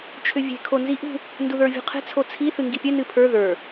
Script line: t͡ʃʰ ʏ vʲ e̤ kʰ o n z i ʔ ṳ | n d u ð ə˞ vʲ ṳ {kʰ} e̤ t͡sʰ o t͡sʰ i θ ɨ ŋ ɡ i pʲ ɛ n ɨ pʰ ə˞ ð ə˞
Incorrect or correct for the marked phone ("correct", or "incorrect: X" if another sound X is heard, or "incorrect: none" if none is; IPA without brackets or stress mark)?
incorrect: qʰ